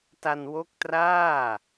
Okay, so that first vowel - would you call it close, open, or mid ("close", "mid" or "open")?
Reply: open